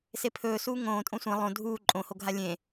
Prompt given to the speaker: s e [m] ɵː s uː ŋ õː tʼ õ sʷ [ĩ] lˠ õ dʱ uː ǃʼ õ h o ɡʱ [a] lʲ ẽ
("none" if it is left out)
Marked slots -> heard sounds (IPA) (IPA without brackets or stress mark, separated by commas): pʰ, ẽ, a